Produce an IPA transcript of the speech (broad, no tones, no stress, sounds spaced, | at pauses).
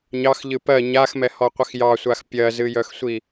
ɲ ɑ x ʎ ɨ p ɜ ɲ a x m ɛ h ɔ qʷ ə x j ɑ sʷ a x pʲ ɜ z ɨ j œ x sʷ i